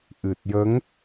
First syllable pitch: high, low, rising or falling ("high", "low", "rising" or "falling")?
low